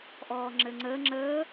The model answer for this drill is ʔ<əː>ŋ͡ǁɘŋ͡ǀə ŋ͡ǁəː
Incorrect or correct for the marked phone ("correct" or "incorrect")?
incorrect